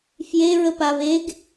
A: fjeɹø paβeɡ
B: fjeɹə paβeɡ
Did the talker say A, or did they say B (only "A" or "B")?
B